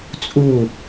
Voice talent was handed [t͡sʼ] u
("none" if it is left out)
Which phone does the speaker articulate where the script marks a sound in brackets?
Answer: t͡sʼ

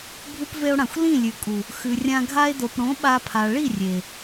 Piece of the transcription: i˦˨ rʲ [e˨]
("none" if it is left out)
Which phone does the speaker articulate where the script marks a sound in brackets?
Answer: e˨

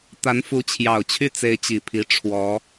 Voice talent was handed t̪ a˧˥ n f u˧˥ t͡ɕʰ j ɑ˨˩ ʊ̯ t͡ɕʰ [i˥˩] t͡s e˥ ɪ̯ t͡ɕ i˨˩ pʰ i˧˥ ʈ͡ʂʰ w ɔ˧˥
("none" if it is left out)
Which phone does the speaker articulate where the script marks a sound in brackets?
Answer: y˥˩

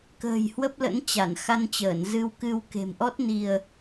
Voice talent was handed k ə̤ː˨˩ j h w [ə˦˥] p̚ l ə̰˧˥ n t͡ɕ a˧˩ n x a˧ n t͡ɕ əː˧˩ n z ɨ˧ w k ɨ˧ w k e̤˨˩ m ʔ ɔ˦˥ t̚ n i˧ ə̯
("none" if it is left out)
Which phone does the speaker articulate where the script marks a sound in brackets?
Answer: ə˦˥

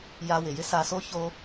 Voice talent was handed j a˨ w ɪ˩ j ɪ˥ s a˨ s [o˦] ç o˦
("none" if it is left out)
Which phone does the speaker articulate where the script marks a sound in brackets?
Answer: o˦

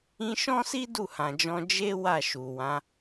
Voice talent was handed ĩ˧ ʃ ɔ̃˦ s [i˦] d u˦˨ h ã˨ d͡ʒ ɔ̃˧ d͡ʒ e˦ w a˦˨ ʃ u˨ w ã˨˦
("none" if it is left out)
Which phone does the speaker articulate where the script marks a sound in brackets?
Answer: i˦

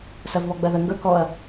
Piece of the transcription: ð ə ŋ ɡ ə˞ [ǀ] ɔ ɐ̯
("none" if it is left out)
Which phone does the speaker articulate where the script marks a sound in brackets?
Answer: k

